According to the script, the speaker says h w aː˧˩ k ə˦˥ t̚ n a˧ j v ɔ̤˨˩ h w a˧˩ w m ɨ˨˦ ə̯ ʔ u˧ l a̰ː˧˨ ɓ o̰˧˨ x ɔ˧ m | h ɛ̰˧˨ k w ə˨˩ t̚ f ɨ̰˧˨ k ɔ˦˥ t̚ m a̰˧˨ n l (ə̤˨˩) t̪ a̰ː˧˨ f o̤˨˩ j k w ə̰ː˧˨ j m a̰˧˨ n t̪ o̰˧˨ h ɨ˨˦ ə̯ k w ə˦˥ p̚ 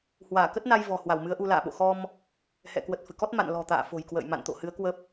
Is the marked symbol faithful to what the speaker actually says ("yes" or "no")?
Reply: no